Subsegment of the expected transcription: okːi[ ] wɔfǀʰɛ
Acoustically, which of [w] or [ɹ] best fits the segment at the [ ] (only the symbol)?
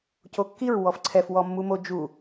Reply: ɹ